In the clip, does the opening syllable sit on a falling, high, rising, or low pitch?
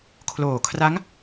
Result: low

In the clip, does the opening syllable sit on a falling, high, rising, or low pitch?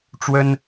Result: high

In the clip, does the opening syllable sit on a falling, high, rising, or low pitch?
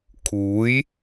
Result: rising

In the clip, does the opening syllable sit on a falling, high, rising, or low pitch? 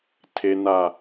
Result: low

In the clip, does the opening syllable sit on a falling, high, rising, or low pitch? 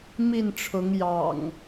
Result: falling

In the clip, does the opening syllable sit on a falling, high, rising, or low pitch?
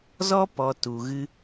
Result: high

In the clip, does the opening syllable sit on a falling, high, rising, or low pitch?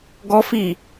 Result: high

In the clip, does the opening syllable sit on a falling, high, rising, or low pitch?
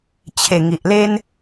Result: low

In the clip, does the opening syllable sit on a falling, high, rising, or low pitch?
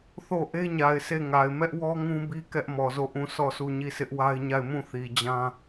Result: falling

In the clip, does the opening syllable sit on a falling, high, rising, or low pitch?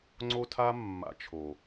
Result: high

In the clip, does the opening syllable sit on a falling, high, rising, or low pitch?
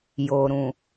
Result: low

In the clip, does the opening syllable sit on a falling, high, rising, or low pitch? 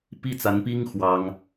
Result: falling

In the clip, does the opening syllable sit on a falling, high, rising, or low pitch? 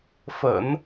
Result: low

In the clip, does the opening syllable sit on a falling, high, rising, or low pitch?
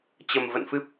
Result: low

